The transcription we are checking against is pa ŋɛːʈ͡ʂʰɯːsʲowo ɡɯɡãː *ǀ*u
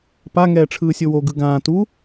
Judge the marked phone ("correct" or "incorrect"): incorrect